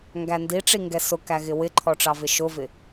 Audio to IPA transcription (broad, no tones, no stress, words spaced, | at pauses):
ŋɡændiʈ͡ʂiŋɡɛ sʊkæɣɪ wɪǃʰɔʈ͡ʂɑvɪ ʃʊvɪ